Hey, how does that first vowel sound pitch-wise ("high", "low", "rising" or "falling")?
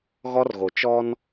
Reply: high